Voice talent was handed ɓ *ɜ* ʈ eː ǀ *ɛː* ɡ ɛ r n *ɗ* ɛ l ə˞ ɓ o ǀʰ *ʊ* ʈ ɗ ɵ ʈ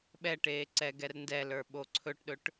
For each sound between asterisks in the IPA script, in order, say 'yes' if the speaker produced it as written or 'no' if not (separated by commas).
no, yes, no, no